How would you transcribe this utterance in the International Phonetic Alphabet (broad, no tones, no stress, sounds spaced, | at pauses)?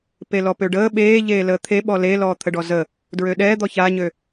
p e l ɔ p ø ɖ əː ɓ eː ʎ eː l əː t̪ʰ e ɓ ɔ l e l ɔː t̪ʰ ə ɖ ɔ z ə | d ɹ ø ɗ ɛː d̪ ɔ ç a ɲ ø